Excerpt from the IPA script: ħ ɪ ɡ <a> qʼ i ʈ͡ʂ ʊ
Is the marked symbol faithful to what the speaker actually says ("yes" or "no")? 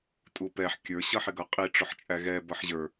no